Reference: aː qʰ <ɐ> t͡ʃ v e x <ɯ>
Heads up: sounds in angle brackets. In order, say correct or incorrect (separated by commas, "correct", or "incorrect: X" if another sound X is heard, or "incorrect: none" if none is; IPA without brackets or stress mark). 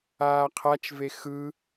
incorrect: a, correct